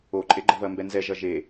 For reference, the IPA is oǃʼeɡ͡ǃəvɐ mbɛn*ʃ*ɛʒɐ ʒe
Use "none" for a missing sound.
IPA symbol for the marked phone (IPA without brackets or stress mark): z